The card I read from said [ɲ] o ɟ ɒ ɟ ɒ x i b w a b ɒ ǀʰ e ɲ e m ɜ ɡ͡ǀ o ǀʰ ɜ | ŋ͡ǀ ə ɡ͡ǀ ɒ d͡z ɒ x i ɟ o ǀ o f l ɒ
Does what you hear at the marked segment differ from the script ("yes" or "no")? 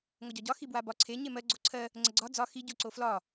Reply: yes